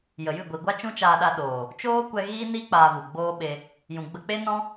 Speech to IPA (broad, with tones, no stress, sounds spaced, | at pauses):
j ə˨ j ɨ˦˨ ɡʷ i˨ ɡʷ a˦ t͡ʃ ũ˦ t͡ʃ aː˧ ɗ a˧ ɗ oː˨ | t͡ʃ oː˦ kʷ ɛ˧ ɣ iː˦ n i˦ k͡p aː˧ v u˨ ɡ͡b oː˦ ɓ e˧ | j ũ˨ ɡ͡b ə˧ k͡p e˦ n ɔ̃˦